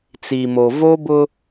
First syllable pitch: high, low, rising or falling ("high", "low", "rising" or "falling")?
low